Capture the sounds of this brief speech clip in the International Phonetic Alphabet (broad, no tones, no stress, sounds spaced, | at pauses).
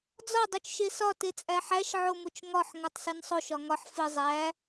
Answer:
d͡z ɒ dˤ u t͡ʃ ʃ e s ɒ t e t͡sʼ æ ħ æ ʃ ʕ o m o t͡ʃ ŋ ɒ ħ ŋ o tˤ s i n sˤ o ʃ ɒ ŋ ɒ ħ f i zˤ æ